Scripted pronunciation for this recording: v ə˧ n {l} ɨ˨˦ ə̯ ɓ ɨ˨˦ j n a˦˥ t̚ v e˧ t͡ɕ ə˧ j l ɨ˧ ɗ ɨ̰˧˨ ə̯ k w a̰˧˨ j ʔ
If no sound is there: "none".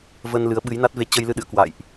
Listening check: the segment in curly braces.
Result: l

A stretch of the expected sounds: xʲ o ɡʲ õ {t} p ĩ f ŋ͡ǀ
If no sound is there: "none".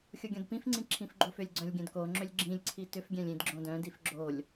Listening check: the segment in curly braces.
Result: d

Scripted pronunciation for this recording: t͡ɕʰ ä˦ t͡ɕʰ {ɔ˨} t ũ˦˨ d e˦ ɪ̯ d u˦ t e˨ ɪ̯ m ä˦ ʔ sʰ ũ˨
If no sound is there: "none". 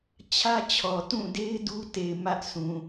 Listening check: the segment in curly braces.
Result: ɔ˨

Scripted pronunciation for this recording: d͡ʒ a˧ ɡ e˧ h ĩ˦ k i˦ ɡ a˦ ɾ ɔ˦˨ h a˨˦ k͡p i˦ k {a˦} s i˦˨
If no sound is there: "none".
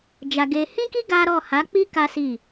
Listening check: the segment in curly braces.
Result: a˦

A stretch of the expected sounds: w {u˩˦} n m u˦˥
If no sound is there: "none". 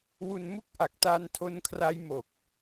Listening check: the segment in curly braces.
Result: u˧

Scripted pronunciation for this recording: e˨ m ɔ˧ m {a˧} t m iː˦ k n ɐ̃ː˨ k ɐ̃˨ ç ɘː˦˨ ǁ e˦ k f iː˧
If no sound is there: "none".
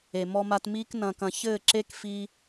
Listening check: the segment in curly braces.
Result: a˧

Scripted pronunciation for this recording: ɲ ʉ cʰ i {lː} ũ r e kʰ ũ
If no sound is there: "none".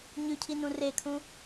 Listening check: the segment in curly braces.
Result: n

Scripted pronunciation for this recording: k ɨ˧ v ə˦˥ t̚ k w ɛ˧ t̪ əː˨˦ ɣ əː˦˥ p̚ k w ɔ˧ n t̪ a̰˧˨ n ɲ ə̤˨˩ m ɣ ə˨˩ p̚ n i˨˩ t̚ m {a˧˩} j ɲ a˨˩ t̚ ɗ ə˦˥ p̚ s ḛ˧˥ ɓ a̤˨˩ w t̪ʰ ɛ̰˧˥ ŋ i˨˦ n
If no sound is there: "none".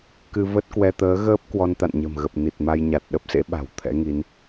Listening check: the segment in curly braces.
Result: a˧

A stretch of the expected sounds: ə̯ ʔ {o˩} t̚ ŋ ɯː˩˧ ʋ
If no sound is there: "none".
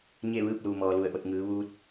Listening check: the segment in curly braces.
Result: o˧˩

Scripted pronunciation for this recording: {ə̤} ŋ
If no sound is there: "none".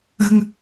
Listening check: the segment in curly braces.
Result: ə̤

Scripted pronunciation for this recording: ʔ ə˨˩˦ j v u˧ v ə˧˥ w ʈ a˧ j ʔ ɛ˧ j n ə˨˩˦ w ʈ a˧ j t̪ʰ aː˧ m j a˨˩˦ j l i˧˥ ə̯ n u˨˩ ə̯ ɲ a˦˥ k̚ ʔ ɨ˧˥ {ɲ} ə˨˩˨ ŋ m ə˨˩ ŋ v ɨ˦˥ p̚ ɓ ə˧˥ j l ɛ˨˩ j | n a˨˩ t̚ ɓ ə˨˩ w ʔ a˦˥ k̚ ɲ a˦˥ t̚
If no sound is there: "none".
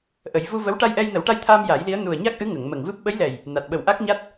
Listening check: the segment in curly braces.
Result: ŋ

